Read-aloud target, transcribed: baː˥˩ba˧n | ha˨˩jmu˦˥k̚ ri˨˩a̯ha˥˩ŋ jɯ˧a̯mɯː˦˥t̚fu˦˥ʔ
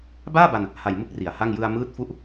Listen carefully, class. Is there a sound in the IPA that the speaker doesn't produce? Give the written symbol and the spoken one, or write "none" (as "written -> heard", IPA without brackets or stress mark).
none